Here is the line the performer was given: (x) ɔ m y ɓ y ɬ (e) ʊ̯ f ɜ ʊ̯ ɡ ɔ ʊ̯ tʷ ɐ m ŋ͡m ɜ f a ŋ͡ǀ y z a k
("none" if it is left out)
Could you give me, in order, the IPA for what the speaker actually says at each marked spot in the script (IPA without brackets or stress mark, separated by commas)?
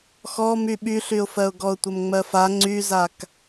x, y